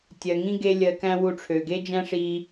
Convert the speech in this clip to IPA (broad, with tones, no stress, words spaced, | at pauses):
tʲɜ˨ŋĩ˦ ɡe˦lʲɜ˧kæ̃˦ wu˧ʈ͡ʂʰø˨ ɡe˦d͡ʒæ̃˦ʂi˧